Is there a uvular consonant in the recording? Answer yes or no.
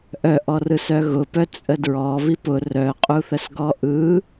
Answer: yes